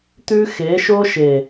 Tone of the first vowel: high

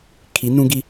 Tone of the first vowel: rising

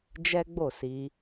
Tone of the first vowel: high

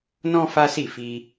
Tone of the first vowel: high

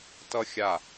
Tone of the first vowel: high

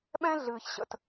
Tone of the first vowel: high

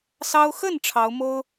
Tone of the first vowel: high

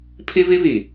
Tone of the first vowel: high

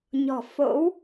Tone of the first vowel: low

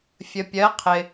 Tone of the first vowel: low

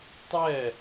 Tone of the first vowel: falling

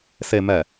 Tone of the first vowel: low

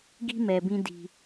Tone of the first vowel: high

